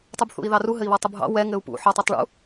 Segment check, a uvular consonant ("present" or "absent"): absent